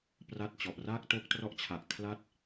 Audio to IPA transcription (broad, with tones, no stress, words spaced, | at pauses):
pra˥˩t̚t͡ɕɔ˨˩ʔ raː˥˩k̚to˦˥k̚ trɔ˦˥ʔt͡ɕʰa˨˩ʔ kʰla˥˩t̚